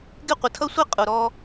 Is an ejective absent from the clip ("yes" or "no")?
no